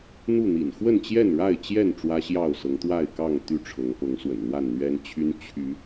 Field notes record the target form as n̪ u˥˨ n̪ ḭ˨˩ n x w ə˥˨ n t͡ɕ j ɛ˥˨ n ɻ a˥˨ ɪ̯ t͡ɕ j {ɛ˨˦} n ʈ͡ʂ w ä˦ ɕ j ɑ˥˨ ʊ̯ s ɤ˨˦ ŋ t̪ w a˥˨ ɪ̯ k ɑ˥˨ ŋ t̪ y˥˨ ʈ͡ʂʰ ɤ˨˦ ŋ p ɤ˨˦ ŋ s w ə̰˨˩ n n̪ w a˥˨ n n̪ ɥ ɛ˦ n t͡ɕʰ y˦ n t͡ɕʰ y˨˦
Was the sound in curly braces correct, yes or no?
no